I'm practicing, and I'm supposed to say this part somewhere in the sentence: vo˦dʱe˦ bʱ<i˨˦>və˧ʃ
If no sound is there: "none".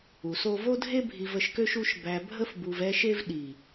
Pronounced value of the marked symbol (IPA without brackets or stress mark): i˧